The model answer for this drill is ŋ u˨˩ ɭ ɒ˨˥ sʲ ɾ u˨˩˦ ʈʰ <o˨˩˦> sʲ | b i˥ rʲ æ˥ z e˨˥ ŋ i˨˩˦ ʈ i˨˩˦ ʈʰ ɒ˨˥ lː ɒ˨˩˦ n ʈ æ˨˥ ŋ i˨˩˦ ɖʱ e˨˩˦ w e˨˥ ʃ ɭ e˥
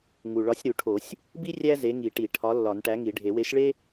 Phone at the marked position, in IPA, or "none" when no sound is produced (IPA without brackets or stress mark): o˨˩˦